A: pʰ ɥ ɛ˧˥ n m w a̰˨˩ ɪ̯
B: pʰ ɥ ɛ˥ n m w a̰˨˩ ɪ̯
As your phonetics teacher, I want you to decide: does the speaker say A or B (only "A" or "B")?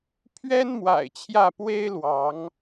B